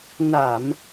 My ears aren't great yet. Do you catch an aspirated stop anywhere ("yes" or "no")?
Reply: no